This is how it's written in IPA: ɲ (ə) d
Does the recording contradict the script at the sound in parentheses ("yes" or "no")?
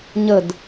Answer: no